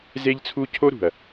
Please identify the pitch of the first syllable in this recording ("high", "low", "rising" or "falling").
high